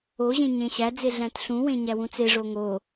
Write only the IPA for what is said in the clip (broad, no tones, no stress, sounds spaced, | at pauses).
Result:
o ʑ ẽ ɲ ẽ ɕ æ d͡z e ɮ æ̃ t ɬ ũ w ẽ ɲ æ w ũ t͡s e ʐ o ŋ o